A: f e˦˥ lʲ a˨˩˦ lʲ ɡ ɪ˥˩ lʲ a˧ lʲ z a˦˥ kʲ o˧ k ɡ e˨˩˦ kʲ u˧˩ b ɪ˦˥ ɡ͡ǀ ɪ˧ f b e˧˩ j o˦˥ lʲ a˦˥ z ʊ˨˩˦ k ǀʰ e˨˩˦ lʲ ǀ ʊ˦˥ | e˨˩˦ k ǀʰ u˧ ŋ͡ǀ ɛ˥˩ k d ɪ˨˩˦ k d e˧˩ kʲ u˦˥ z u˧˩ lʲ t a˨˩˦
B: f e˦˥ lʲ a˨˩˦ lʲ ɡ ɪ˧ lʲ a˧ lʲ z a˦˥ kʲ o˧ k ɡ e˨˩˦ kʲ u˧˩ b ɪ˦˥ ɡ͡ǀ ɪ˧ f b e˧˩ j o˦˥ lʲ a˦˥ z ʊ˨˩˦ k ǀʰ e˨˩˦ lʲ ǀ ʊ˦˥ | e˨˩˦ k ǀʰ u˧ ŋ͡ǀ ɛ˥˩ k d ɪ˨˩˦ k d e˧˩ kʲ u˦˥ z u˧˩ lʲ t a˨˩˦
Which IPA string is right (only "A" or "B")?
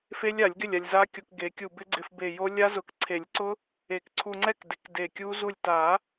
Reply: A